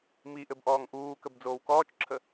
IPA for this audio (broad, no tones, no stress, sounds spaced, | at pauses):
m i ʔ ɘ b ʔ ɔː ŋ ʔ uː k ə b d͡z oː w k ɔː t͡ʃ ǁʰ ə